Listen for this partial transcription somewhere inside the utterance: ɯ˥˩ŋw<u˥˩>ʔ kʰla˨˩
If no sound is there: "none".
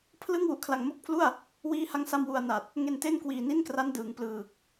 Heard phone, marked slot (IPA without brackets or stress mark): u˨˩